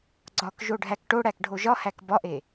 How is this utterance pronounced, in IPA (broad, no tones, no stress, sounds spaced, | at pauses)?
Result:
ɡ͡ǀ ɒ k ʒ o ɖʱ æ k ʈ o ɽ æ k ɖʱ o ʒ ɒ h æ k b ɒ ʔ e